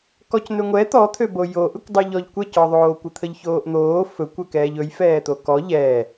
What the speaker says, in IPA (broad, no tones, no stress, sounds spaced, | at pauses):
k ɔ c n̪ ø ŋʷ ɛ t̪ ɔ t̪ʰ ø b o j o ʔ ɵ kʷ dˤ ɯ ʎ ɔ ʎ kʷ ɛ c ɔ ðˤ oː kʷ ɯ t̪ʰ ə ʎ ç oː ʔ n̪ oː f ɵ kʷ ø k ɛː ʎ ɵ j f ɛː t̪ o k ɔ ʎ ɛː